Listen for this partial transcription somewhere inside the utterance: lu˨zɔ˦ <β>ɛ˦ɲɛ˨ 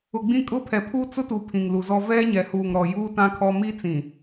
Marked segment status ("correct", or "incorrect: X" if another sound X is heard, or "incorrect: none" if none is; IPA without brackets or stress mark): incorrect: v